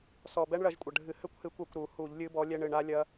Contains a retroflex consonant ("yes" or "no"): yes